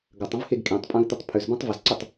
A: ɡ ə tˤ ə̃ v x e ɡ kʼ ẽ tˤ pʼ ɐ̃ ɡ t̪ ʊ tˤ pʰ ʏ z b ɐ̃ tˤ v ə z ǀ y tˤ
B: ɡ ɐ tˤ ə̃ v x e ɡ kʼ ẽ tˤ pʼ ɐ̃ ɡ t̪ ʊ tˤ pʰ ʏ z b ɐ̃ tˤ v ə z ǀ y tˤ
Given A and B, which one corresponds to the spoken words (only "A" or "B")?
B